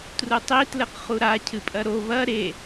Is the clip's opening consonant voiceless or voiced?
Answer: voiceless